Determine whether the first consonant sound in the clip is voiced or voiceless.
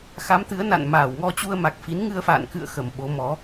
voiceless